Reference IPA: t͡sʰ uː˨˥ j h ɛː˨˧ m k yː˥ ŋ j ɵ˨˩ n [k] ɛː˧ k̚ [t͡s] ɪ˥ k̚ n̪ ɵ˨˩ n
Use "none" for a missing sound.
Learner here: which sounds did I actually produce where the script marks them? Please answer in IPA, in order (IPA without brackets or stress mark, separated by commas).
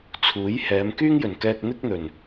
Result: k, n̪